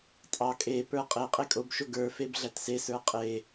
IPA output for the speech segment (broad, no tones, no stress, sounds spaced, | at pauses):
tʼ ɑ kʼ e p ə˞ qʼ e qʼ e kʼ o b ʃ o ɡ ə˞ f e b ɮ æ t s e s ə˞ qʼ e